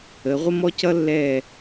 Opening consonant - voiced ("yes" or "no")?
yes